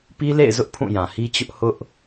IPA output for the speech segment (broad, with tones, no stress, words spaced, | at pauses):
pi˦lḛ˦˨ɪ̯zʊ˦ʔ pʰũ˦˨jã˨hi˦t͡ɕʊ˦ʔ hʊ˦ʔ